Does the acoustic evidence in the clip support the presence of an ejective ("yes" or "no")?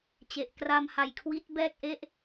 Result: no